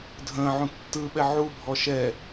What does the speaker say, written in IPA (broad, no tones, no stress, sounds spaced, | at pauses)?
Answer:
dʱ ə̃ː ʕ ũ tː ɯ ɓ ɛ ʕ u bʱ ɔ ʃ ɛ